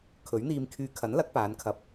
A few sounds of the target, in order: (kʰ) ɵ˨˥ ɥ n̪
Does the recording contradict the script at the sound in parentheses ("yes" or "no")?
no